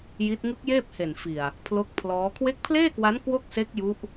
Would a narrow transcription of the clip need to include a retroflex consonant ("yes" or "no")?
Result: no